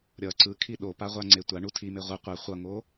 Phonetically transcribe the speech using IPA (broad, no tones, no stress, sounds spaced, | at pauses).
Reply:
ɾʲ ʌ ǀ ɯ kʰ i ɗ o p a ʁʷ a ŋ͡ǀ e tʷ a ɳ u tʰ i m e ʁʷ ɯ qʷ ɛ χʷ ʌ ŋ o